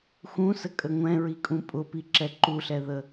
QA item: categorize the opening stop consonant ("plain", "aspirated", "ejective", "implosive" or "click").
ejective